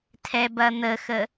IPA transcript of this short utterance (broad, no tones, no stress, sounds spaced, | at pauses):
tʰ ɛ b ɐ n̪ ə x ə